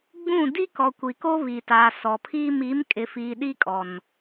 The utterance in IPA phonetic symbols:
ɡ͡b ũ˦˨ d i˦ k ɔ˨ kʷ i˨ k o˦ β i˨ t aː˨ s ɔ˨ pʰ iː˦ m i˨˦ m kʼ ɪ˨ f iː˨ ɗ i˦ kʼ ɔ˨ n

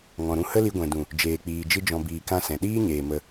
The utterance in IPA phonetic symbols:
ŋ ɔ̃˧ ɾ ũ˦ h ə˦ l i˧ ɡʷ ɛ̃˨ d ũ˨ | d͡ʒ eː˧ k͡p iː˧ d͡ʒ ɨ˦ d͡ʒ ɔ̃˧ b iː˨ k ã˧ s ɛ̃˨ ɗ iː˦ ɲ eː˨ m ə˧

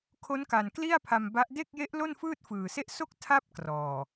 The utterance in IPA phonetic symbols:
kʰ o˦˥ n k a˨˩ n k l i˥˩ a̯ pʰ a˧ m b a˦˥ ʔ d e˥˩ k̚ j e˦˥ ʔ l o˥˩ n f ɯː˥˩ t̚ f ɯː˨˩ s e˥˩ ʔ s o˦˥ k̚ tʰ a˥˩ p̚ k r ɔː˨˩

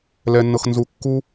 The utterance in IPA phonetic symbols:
l ɛ˧ nː ɤ˧ x n z u˧ kː u˦

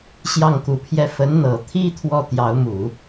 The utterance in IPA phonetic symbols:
ɕ j ɑ˥˩ ŋ k u˧˥ pʰ j ɛ˥˩ f ə˧˥ n n̪ ɤ˨˩ t̪ʰ i˥ t̪ʰ w ɔ˥˩ t̪ j ɑ˧˥ ʊ̯ m u˨˩˦

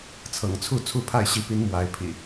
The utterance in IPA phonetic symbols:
t͡sʰ ɤ̰˨˩ ŋ t͡sʰ u˥˨ t͡sʰ u˥˨ pʰ a˥˨ ɪ̯ ɕ i˨˦ p i˨˦ n m w a˨˦ ɪ̯ pʰ ḭ˨˩

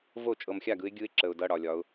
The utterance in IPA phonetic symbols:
v o˥˩ t͡ʃʼ ɤ˨ m xʲ a˥˩ ɡ ɯ˨˦ ɪ̯ ɡʲ ɯ˦˥ ɪ̯ ǁ ə˨ ʊ̯ d ʌ˧˥˧ ɽ ɒ˨ lʲ ɒ˨˦ ʊ̯

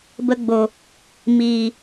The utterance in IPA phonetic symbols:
b ə˧ ɡ͡b o˨ | m iː˨

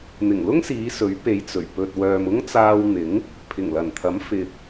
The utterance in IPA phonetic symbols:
n̪ ɪ˨˩ ŋ l ʊ˥ ŋ s iː˨˧ s ɵ˨˥ ɥ p e˨˧ j t͡s ɵ˨˩ ɥ p ɵ˨ t̚ w œː˨ m ʊ˥ ŋ t͡s aː˧ w n̪ ɪ˨˥ ŋ | pʰ ɪ˨˩ ŋ l ɐ˨˩ n t̪ʰ ɐ˨˥ m f ɪ˨ k̚

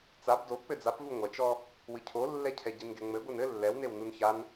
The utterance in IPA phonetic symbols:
t͡s a b d o k͡p ɘ d͡z a p v u ŋʷ ɐ t͡ʃ ɔ | w ɨ cʰ o lː ɛ cʰ ɛ ɟ i n ɡ ɛ ŋ͡m ɘ ɡʷ ɘ n ɘ lː ɛ w n e w n u n ç a n

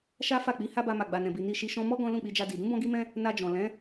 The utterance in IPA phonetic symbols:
ʃ a˦ f a˦˨ k͡p i˨˦ h a˦ b a˧ m a˨ ɡ͡b a˨ n ɛ̃˨ b i˨ n i˧ ʃ i˧ ʃ ɔ̃˧ m ɔ˦ ɡ ɔ̃˦ l ũ˦˨ k͡p i˧ d͡ʒ a˧ d i˨ d ũ˨˦ b ɔ̃˧ ɡ i˧ m ɛ̃˧ | n a˧ d͡ʒ ɔ̃˨ l ɛ̃˨˦

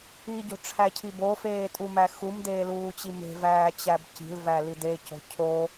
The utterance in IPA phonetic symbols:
i ɟ o̤ ʈ͡ʂʰ æ cʰ i b o f eː tʼ u m æ x u m d eː l uː t͡ɕ i m e̤ v æː t͡ɕ æ b c i̤ l v æ l i d e c o̤ cʰ o

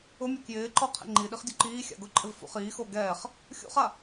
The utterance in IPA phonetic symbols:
ʊ mʲ ʊ k j ɪː ǃ ɔ qʰ ḛ ŋ͡ǃ i ɗ i χ dʲ u ǃ iː xʲ a̰ ɡ ʊ ǃʼ ɪ v f ṵ χ iː x o ɡ ɛː χ | xʲ ṵ χ a

